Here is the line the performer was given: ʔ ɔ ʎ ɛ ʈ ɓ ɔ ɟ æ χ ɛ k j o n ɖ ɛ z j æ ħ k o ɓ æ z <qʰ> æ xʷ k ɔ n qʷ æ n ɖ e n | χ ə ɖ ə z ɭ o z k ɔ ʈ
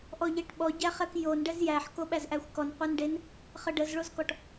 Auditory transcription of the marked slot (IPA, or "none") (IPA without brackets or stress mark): ʔ